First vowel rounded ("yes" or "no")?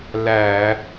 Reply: no